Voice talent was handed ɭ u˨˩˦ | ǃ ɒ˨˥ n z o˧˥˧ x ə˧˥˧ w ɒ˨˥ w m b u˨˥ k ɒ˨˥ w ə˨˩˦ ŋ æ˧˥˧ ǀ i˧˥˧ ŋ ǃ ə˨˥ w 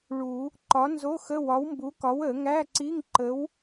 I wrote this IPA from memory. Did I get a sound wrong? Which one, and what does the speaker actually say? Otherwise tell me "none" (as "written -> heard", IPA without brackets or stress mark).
none